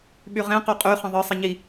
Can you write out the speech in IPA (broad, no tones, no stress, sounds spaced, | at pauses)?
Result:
ɓ y ʁ ẽ q o qʼ y χ ə̃ ðˤ ɯ sˤ ɪ ɲ i